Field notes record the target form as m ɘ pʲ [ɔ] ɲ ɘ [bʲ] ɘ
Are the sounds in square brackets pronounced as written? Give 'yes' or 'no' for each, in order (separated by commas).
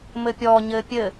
yes, no